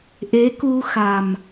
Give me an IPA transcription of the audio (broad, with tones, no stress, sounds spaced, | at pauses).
ʔ e˧˥ k u˧ x a˨˩ m